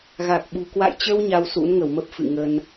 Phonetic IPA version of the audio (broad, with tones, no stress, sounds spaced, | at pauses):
ɣ a˨˩ k̚ ɓ ṳ˨˩ k w a̰˧˨ j t͡ɕ ə˧ w ɲ a˧ w s ṵ˧˥ n ŋ ə˧˩ w m ə˦˥ p̚ f ɨ̰˧˨ ŋ ə˧ n